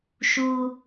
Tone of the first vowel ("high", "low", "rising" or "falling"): high